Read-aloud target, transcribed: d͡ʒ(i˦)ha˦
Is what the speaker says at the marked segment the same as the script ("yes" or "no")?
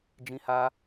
no